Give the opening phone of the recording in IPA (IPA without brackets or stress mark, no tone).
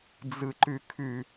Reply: d͡z